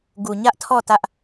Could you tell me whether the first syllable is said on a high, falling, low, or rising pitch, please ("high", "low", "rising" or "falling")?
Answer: low